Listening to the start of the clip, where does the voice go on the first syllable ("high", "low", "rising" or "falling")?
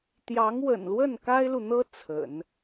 rising